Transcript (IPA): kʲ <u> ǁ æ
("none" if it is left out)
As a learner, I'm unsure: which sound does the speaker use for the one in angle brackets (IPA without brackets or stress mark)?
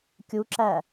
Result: u